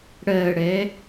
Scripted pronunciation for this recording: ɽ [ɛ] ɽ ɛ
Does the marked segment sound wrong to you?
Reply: yes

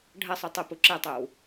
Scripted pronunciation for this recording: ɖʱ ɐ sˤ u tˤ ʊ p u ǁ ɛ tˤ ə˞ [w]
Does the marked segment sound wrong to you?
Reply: no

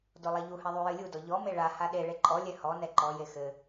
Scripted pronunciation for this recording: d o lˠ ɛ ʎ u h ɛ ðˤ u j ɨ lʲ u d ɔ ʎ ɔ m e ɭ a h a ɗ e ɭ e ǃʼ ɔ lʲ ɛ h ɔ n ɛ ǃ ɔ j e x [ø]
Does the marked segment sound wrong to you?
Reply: yes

